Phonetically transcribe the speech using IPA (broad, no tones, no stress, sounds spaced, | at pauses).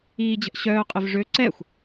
iː d͡ʑ ə̤ ʔ ɕ œː qʼ ɪ v ʐ ø ǀ ɛ xʷ